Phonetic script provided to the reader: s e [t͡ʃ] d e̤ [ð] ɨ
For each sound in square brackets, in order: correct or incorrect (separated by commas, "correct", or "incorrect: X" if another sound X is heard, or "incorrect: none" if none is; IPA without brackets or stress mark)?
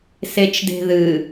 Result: correct, correct